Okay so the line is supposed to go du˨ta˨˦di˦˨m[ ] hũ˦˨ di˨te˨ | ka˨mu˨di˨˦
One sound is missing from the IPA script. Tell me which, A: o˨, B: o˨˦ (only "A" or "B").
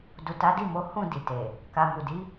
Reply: B